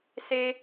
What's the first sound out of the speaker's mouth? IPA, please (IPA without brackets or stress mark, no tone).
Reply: s